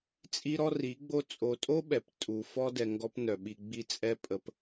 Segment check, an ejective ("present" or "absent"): present